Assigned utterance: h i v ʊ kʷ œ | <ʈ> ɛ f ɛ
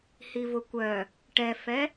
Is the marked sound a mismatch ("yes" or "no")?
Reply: no